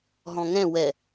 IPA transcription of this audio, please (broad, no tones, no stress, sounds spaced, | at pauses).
ɦ ɔ̃ ŋ ɛ̃ w ɛ